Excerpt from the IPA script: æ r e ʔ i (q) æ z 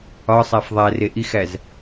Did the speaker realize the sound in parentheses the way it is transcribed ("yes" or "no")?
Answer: no